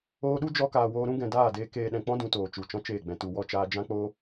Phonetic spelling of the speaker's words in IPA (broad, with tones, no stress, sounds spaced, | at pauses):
oː˧ ɗ u˦ d͡ʒ ɔ˧ k aː˨ w oː˧ ɾ ũ˦ ɡ ɛ̃˨ d aː˦˨ d eː˧ k eː˧ ɗ ɛ̃˨ k͡p ɔ̃˦ d ũ˨ t oː˨ t͡ʃ u˨ t͡ʃ ɔ̃˦ t͡ʃ eː˦˨ ɡ͡b ɛ̃˧ t u˨ w ɔ˦˨ t͡ʃ aː˧ d͡ʒ ã˦ k͡p oː˦